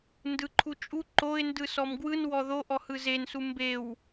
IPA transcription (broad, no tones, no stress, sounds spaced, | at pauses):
n d ɯ ǃʰ u t͡ʃʼ u ǃ o ɪ̯ n d ɯ s ɔ m ɡ w ɯ n w ɔ ð o ʔ ɔ h ɯ z e n s u m b e w